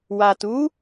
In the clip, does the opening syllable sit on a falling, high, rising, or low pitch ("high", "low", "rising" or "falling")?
low